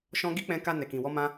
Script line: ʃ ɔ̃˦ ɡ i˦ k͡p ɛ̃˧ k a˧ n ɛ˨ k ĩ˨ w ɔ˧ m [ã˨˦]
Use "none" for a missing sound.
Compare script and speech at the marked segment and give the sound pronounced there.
ã˦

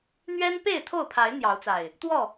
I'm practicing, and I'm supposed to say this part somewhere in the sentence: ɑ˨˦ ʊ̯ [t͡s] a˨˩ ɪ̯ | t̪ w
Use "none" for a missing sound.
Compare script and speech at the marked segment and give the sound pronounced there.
t͡s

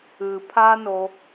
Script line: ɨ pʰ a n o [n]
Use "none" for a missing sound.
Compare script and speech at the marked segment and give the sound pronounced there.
none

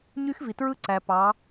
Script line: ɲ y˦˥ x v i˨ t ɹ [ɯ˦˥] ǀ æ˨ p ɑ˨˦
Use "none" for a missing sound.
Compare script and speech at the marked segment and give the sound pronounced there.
ɯ˦˥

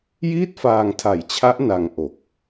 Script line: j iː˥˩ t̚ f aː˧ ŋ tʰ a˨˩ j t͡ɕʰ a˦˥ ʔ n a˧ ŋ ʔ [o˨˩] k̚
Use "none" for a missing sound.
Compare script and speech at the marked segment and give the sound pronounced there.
o˨˩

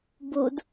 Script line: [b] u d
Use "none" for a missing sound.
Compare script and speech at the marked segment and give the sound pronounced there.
b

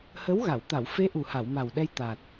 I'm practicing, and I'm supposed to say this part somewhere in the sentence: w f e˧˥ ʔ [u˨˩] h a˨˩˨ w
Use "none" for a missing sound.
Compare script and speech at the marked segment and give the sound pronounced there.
u˨˩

